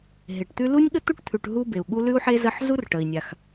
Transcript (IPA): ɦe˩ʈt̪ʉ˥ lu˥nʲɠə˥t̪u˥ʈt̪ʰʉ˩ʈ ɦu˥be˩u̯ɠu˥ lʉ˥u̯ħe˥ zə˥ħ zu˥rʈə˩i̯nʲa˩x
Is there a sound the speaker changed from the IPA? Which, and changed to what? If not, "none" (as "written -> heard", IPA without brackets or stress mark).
none